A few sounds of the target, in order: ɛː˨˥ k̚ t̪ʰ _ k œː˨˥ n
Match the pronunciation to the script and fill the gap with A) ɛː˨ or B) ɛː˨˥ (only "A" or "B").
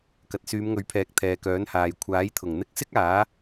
A